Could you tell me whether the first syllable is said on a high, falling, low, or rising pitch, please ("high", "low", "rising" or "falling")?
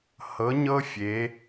rising